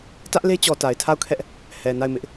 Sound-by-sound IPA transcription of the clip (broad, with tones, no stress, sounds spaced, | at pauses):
t ä˦ ʔ l e˦ t͡ɕ ɔ˨ t a˨ ɪ̯ tʰ a˦˨ ʊ̯ kʰ ɛ˦ ʔ | h ɛ˨ n a˦˨ ɪ̯ m ɪ˦ ʔ